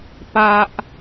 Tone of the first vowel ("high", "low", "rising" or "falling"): high